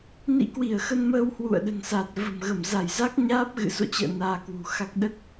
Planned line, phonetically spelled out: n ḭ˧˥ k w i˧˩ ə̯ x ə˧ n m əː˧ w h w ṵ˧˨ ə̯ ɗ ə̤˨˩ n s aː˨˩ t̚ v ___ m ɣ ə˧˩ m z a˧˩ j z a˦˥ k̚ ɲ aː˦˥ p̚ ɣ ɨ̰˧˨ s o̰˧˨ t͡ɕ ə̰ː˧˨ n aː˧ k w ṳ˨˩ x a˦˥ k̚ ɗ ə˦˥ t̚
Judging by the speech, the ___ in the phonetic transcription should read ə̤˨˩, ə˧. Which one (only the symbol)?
ə̤˨˩